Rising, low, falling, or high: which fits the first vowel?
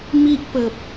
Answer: high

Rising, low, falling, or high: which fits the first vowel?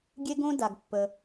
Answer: high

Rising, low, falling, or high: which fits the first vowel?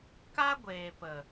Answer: high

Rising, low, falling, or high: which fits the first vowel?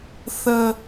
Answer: low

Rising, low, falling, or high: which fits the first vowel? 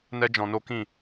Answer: high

